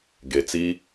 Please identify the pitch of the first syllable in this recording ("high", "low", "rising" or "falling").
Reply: low